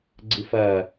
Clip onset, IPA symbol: ɡ͡ǀ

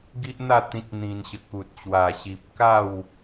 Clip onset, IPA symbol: ɡ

